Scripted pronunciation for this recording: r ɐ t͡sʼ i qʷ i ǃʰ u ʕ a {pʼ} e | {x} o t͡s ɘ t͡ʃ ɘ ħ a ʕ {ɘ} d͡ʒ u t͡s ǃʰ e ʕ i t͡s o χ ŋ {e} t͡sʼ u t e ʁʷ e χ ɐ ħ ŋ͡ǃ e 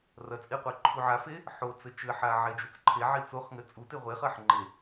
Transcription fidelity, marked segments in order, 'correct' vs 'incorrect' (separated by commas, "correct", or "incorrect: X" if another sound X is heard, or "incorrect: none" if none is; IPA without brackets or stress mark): incorrect: f, incorrect: ħ, incorrect: e, incorrect: ɘ